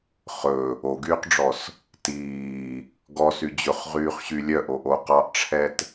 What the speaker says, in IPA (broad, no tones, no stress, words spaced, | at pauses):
χɵ | oɡyːqɖ͡ʐɔs | tiː | ɡɔsy d͡ʑɵχʁyːχɕy lʲœʔoʔo qɑʔʈ͡ʂʰɛt